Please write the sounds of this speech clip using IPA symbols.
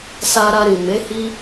s a˧ ɾ a˧ ɾ ĩ˨ m e˨˦ h i˦

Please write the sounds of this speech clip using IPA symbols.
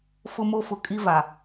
f ʊ˦ m o˦ f ʊ˨ kʼ i˦ v a˨

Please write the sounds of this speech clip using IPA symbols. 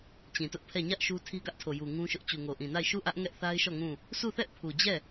t͡ɕ ĩ˨ t ʊ˦ ʔ pʰ ɛ˦˨ ɲ ä˦ ʔ ʃ u˦ tʰ i˦ ɡ ä˦ ʔ tʰ o˨ j u˨ ŋ ũ˦ ʃ ʊ˦ ʔ t͡ɕ u˨ ŋ o˨ ʔ ĩ˨ n a˦˨ ɪ̯ ʃ u˦˨ ʔ ä˦ ʔ ŋ ɛ˦ ʔ θ a˦ ɪ̯ ʃ ɔ˦˨ ŋ ũ˦˨ | sʰ u˦˨ θ ɛ˦ ʔ pʰ u˨ d͡ʑ ɛ˦˨

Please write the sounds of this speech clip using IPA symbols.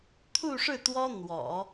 t̪ʰ u˥˧ ʂ ɻ̩˥˩ t̪ w ɔ˥ n̪ w ɔ̰˨˩˦

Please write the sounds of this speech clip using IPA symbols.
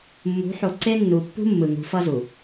mː ṳ˨˦ ħ o˨ ǀ e˦ nː u˨ pː ṳ˦ mː ɯ˨ ŋ ṳ˨˦ f ʌ˦ z u˨

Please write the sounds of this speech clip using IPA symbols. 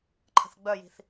ǃʰ ə̤ θ ɡ͡b œ j i̤ θ

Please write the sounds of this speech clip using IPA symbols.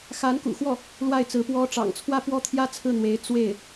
x a˧˥ n k ṵ˨˩ x w ɔ˥˩ | l w a˥˩ ɪ̯ t͡s ɹ̩˧˥ p w ɔ˥ ʈ͡ʂ ɑ̰˨˩ ŋ t͡sʰ w ä˥˩ p w ɔ˥ t̪ʰ j ä˥ t͡sʰ ɹ̩˥˩ n̪ w e˧˥ ɪ̯ t͡s w e˥˩ ɪ̯

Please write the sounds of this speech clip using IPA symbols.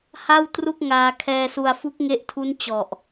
h a˥˩ w t r u˥˩ k̚ ŋ aː˧ kʰ ɛː˧ s u˧ a̯ f u˦˥ k̚ ŋ e˦˥ ʔ tʰ u˦˥ n t͡ɕ ɔ˨˩ ʔ

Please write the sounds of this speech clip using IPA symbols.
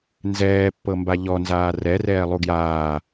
n z ɛː pː ɤ m b a ʎ ɔ n z aː r ɛ r ɛː lˠ u ɡ j aː

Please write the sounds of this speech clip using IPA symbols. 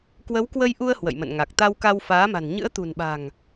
k w ə˨˦ w k w ə˧ j ʔ u˧ ə̯ h w ə̰˧˨ j m ə̰˧˨ n ŋ a˨˩ k̚ t̪ a˧ w k a˧ w f aː˨˦ m a̤˨˩ n ɲ ɨ̰˧˥ ə̯ t̪ ṳ˨˩ n ɓ a̤˨˩ ŋ

